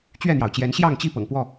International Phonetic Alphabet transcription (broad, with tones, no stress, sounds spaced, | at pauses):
t͡ɕ ɥ ɛ˥˨ n̪ j ɑ˩ ʊ̯ t͡ɕ j ɛ˨˦ n ɕ j ɑ˥˨ ŋ t͡ɕ i˥˨ p ɤ̰˨˩ ŋ p w ɔ˥˨